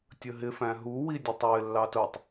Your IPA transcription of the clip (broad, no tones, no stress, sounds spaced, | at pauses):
tʲ ə ɦ ɪ f æ̃ ɦ u w i dʲ ʊ tˤ w ɪ lː ɑ t ʊ tˤ